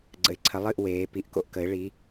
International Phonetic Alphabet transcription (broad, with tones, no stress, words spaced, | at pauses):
ɡ͡ǀə̰˨˦ɪ̯ǀʰə˨˦lˠɨ˥˨ʔ weː˨˦ pi˧˩ʔko̰˥˨ʔ kə˨˦ɪ̯ ɭi˨˦